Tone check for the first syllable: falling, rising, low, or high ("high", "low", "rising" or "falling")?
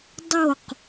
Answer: falling